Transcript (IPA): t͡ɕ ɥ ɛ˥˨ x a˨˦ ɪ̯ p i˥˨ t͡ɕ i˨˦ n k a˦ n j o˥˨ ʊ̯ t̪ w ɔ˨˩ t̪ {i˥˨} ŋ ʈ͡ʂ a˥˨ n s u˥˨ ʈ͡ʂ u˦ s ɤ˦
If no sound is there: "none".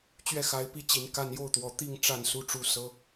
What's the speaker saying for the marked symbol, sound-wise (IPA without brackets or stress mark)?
i˥˨